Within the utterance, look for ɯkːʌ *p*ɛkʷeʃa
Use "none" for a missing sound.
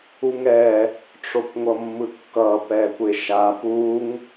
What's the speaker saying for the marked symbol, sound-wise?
p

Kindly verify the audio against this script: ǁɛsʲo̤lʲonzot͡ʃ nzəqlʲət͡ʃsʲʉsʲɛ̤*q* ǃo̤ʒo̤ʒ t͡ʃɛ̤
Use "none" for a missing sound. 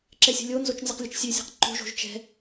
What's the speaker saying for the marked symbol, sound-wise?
q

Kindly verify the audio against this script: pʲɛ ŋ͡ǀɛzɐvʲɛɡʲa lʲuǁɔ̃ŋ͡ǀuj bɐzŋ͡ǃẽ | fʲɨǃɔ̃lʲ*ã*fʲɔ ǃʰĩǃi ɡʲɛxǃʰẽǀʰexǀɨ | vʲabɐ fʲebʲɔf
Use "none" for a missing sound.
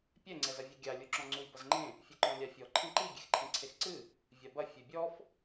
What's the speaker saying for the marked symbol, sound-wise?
a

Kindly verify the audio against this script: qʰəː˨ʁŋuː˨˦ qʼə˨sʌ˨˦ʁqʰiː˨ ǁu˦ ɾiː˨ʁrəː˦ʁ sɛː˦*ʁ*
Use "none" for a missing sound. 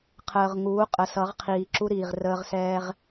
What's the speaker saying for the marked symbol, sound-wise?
ʁ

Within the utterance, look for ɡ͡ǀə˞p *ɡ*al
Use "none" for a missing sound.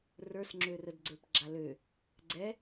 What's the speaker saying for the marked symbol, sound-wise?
ɡ͡ǁ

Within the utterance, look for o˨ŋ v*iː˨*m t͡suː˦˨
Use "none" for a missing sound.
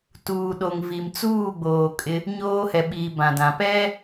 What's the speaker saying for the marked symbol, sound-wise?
i˨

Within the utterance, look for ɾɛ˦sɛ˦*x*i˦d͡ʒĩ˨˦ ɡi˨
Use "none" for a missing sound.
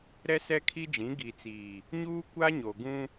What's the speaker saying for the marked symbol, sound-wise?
kʰ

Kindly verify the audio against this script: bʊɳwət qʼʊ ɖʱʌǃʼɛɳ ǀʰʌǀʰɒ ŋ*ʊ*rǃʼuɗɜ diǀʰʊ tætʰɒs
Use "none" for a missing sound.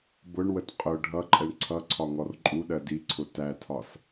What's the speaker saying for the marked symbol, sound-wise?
ɔ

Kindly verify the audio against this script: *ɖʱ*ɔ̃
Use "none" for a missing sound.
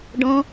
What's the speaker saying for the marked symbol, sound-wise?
ɖ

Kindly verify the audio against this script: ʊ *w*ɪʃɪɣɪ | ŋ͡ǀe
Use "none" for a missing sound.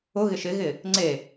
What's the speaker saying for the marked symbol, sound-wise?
ɣ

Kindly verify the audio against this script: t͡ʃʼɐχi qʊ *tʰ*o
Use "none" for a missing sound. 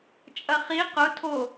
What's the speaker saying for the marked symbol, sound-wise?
tʰ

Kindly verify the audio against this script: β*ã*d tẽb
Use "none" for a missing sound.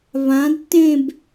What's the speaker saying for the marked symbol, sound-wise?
ã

